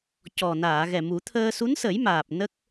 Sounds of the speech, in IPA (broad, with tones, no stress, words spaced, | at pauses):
cɔ˨˩naː˨˩˨ ɣɛ˨˩mu˨˩˦t̪ʰəː˧ su˧˥nsə˨˩˦jmaː˨˩p̚ nə˦˥k̚